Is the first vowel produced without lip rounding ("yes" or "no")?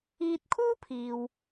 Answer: yes